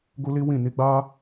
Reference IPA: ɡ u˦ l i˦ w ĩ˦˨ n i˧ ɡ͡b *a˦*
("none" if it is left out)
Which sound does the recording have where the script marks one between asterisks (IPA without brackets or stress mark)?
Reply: a˦